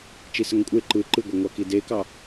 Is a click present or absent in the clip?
present